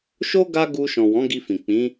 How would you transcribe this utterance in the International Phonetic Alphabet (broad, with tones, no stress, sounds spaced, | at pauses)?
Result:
ʃ o˦ ɡ a˦ ɡ u˧ ʃ ɔ̃˨ w ɔ̃˨˦ ɡ i˧ f ĩ˨ k͡p ĩ˨˦